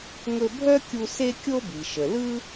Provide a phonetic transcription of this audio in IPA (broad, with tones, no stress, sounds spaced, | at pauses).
ŋ ɵ˧ bʱ œ˥ kʲ u˧ s e˥ kʲ o˥ b i˩ ʃ ə˩ l ɯ˥